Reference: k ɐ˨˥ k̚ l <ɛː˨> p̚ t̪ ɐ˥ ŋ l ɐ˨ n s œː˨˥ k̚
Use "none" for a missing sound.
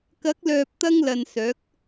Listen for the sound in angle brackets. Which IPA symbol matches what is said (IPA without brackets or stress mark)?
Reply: œː˨